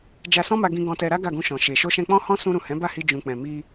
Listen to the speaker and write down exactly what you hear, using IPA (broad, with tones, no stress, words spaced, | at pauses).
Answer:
d͡ʒa˧sɔ̃˦ma˧ ɡĩ˧ ɡɔ̃˧tɛ˧ɾa˦ ɡa˦˨ɡũ˧ʃɔ̃˨ ʃe˨ ʃo˧ʃɛ̃˧k͡pɔ̃˦hɔ̃˦ sũ˧ɾũ˨ hɛ̃˨˦ba˦˨hi˧ d͡ʒũ˨k͡pɛ̃˨mi˧